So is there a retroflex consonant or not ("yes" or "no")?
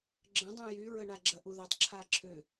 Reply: yes